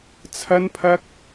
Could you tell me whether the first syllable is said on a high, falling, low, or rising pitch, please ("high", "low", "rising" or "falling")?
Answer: high